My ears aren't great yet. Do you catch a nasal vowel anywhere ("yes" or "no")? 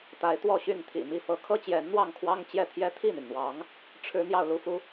no